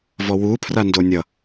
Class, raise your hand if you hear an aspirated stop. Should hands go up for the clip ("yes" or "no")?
yes